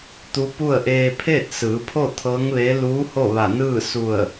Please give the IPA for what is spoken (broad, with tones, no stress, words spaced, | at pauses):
t̪u˧˥pu˥˨ə̯ ʔeː˧pʰeː˥˨t̚sɯː˩˧pʰo˥˨ t̪ʰɤː˧˥ŋʋeː˧˥ luː˧˥ ho˥˨ʋa˧˩nɯː˥˨ su˧˩ə̯